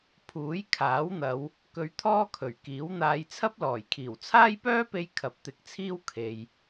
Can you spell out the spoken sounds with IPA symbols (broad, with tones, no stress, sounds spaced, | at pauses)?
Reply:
pʰ uː˨˥ j kʰ aː˨˥ w n̪ ɐ˨˧ w | k ɵ˧ ɥ t̪ʰ ɔː˥ kʰ ɵ˨˩ ɥ k iː˨˥ w n̪ aː˧ j t͡sʰ ɐ˥ p̚ l ɔː˨˩ j kʰ iː˨˩ w t͡sʰ aː˥ j p œː˥ p e˧ j kʰ ɐ˨˥ p̚ t̪ ɪ˨˥ k̚ t͡sʰ iː˥ w kʰ e˨ j